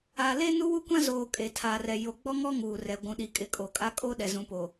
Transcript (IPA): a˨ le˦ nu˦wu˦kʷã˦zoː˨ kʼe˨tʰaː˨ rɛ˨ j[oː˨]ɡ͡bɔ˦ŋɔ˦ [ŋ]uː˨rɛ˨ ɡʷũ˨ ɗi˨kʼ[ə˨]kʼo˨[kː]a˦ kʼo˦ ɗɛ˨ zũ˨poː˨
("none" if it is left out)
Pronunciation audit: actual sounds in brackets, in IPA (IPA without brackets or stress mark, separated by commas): o˨, ŋ, ɪ˨, kʼ